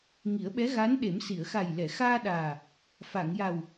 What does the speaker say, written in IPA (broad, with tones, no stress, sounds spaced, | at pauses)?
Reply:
ŋ i˨˩˦ ə̯ ɓ ɛ˧˥ ɣ aː˧˥ n ɗ e˨˩˦ m s i˨˩˨ ə̯ x a˨˩ j l ɛ˨˩˨ x aː˧ ɗ aː˨˩ | f a˨˩˨ ŋ j a˨˩ w